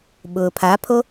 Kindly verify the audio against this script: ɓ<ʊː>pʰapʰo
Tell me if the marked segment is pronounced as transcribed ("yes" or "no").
yes